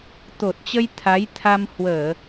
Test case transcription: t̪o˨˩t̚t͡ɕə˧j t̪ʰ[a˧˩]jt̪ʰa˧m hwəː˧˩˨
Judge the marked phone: incorrect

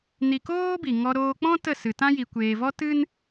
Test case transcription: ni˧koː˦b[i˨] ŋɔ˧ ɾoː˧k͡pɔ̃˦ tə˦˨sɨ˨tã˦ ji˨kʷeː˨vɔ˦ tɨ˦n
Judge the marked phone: correct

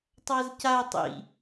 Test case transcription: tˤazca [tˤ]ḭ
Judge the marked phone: correct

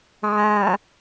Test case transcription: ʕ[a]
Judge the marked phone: incorrect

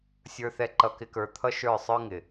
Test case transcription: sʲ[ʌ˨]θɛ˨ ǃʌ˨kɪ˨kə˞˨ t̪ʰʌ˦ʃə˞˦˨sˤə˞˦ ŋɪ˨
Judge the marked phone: incorrect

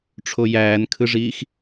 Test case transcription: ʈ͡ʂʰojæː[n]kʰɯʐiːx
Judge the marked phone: correct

